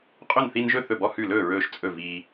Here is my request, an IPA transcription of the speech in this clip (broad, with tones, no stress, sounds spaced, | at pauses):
qʼ ɵ˥˨ n θ i˦ n ʒ ɵ˥˨ θ ɵ˥˨ b ɔ˥˨ h ʉ˥˨ l ɵː˥˨ ɹ ɵː˦ ʃ t͡sʼ ɵ˥˨ v iː˦